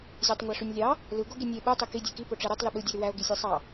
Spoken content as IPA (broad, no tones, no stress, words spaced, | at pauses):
zʲɑtˤŋʷæʂynʲlʲɑ | lɯ ɡoɡinʲe ɓɯ tˤiki dʲeki poʈ͡ʂeɾɯtˤ lyɓɯ dʲoɾywæo̯ ɡisʲæsˤɑ